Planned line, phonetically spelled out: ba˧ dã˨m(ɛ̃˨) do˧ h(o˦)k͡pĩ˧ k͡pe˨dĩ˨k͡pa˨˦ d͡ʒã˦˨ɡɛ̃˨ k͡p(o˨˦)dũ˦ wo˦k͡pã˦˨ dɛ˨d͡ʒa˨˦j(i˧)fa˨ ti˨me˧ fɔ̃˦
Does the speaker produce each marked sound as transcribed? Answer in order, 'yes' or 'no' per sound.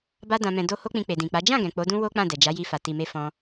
yes, yes, yes, yes

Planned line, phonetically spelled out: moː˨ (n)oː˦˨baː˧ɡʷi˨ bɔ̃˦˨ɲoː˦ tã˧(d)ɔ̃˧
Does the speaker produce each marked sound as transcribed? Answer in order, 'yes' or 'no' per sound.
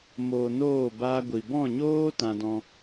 yes, yes

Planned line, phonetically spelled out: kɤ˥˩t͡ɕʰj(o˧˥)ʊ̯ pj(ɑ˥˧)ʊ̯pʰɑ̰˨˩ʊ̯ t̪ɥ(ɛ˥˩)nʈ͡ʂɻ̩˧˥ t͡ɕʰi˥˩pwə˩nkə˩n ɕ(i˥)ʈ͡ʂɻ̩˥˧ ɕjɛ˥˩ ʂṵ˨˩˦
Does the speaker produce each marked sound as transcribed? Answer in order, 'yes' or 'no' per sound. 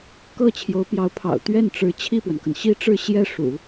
yes, no, yes, yes

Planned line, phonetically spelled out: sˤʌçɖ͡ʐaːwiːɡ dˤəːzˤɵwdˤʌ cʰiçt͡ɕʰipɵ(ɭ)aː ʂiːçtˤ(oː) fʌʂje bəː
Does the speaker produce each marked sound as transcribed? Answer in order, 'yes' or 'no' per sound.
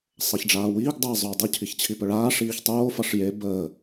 yes, yes

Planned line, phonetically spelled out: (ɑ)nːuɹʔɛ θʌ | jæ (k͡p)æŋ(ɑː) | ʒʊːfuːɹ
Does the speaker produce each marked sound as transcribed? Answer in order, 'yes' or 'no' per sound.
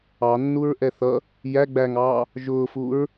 yes, no, yes

